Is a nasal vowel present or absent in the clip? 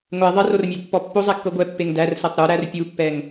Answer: absent